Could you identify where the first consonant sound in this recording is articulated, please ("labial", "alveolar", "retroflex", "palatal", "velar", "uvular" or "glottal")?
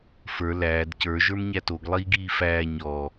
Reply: labial